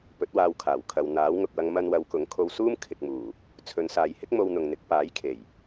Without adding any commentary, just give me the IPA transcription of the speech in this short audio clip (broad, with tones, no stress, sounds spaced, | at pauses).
p ɵ˨˥ t̚ w aː˧ w kʰ aː˨˩ w kʰ ɐ˨ w n̪ aː˨˥ w ŋ ʊ˨ k̚ w ɐ˧ ŋ m ɐ˧ n w ɐ˨˧ w k ʊ˨˥ ŋ kʰ o˧ w s uː˥ m kʰ ɪ˨ k̚ m uː˨˩ | t͡sʰ ɵ˨ n s aː˨ j h ɪ˥ k̚ m o˧ w n̪ ʊ˨ ŋ n̪ ɪ˨˥ k̚ p aː˨˥ j kʰ e˨˩ j